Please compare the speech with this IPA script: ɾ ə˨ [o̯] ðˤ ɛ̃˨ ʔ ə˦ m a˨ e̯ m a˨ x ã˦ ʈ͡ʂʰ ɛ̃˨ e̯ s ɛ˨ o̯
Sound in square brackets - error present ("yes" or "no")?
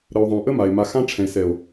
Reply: no